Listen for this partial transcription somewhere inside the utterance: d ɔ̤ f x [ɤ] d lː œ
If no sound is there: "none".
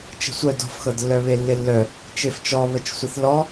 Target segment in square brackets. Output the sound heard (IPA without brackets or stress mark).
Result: ɤ